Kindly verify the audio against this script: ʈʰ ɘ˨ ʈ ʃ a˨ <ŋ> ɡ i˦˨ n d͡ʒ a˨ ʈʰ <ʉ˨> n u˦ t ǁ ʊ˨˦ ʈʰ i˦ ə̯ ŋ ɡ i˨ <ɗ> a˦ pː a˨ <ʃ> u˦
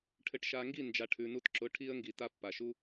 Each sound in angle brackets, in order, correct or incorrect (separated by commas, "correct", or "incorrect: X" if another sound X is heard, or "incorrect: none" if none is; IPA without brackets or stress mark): correct, correct, incorrect: t, correct